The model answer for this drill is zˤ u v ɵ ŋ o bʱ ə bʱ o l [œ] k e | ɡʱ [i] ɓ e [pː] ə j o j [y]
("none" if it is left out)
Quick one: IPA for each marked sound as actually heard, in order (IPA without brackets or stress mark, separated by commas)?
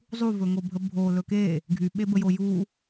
ɵ, y, b, u